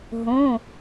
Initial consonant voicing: voiced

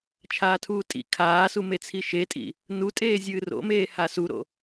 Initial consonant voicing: voiceless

